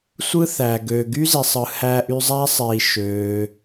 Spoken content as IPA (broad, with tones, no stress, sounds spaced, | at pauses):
sʷ ɯ˥ θ æ˩ ɡ ø˩ ɡ y˥ z i˩ sˤ ɯ˩ h æ˧ ʔ y˧ zˤ æ˥ sˤ i˩ ʃ øː˩